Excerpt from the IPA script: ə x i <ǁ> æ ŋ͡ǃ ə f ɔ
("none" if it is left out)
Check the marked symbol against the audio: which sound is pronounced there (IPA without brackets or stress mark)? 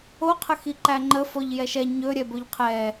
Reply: ǃ